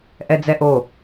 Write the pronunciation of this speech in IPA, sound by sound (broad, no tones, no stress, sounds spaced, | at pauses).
ʔ ɛ d͡z ɛ ʔ o